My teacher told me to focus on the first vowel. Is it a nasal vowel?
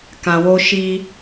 yes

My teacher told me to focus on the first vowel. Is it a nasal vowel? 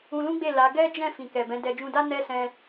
yes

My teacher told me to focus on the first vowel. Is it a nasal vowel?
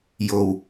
no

